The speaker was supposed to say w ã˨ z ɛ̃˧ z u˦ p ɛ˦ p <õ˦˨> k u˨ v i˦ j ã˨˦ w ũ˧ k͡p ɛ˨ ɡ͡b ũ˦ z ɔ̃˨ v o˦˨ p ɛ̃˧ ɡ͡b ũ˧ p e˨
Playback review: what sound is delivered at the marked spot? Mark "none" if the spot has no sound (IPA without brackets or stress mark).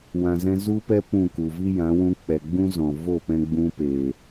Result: ũ˦˨